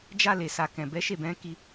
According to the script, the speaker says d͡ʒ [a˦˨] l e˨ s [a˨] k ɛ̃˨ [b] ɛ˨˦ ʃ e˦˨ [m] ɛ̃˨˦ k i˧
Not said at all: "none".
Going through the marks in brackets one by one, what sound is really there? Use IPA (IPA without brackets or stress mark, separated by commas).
a˧, a˨, b, b